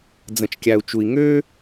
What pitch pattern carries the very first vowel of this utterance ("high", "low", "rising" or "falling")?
low